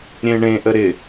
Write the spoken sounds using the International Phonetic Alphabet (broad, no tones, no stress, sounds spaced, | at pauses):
ɾʲ ẽ ɳ ẽ ʔ ə ɾ ɪ